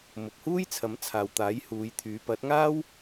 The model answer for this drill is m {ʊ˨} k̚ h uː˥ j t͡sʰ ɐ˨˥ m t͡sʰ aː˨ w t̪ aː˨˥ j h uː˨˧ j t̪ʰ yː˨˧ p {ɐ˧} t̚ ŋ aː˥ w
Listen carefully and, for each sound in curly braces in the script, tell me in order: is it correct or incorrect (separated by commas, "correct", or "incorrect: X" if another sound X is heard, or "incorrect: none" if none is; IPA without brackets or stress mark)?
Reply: correct, incorrect: ɐ˨˥